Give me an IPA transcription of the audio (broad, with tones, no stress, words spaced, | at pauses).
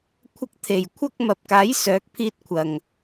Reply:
kʷʰɐ˥k̚t̪ʰe˨˩j kʷʰɐ˥k̚mɐ˨p̚kaː˨˥j sœː˨˥k̚pʰiː˥t̚ kʷʰɐ˨˩ŋ